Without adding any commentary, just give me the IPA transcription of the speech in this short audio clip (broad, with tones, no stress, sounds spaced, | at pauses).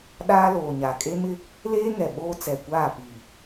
ɗ aː˦ l oː˨ ɲ a˨ kʼ e˦ m ɪ˦ | l eː˦ ŋ ɛ˨ ɓ oː˦ t͡s ɛ˨ kʷ aː˦˨ p iː˨